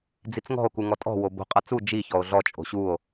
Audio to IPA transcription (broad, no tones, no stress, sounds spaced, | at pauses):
d͡z i t͡s ŋ ɔ̤ o̯ k u ŋ ɔ tʼ ɔ̤ w o b o̤ qʼ a t͡s u d͡ʒ i ç ɔ o̯ ɮ ɔ t͡ʃʼ o̤ ɕ u o̯